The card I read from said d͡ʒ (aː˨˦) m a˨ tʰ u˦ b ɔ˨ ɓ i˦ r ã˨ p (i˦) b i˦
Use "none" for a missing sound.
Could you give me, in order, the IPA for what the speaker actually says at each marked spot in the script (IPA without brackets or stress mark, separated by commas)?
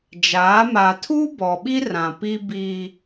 aː˨˦, i˦